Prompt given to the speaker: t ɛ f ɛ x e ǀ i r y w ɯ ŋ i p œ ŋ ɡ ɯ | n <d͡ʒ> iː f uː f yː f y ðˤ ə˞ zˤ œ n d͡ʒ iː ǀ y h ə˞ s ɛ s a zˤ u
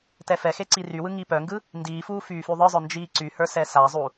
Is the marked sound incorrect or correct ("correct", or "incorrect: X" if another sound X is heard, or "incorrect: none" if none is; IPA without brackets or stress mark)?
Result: incorrect: d